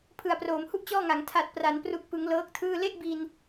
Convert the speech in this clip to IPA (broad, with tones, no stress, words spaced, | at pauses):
pʰɯ˨˩a̯proː˩˦mhu˥˩ʔ t͡ɕɔː˥˩ŋa˩˦ŋ tʰa˨˩t̚pra˩˦n pru˨˩k̚pɯ˩˦ŋ lɤː˦˥k̚tʰɯː˥˩ le˥˩ʔbi˧n